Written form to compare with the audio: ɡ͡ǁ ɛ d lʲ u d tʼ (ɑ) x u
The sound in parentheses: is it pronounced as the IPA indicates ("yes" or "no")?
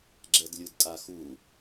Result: no